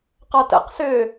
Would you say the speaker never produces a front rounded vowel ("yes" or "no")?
no